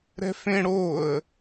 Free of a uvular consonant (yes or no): yes